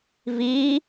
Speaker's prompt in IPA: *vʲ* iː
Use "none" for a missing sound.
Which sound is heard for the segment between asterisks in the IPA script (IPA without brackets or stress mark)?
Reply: v